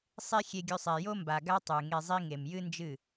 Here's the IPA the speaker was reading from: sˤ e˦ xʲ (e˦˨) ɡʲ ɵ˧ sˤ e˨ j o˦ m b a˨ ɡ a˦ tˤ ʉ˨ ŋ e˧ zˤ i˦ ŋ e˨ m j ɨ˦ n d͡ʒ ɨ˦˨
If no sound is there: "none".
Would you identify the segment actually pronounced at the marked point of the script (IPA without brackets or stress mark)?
e˧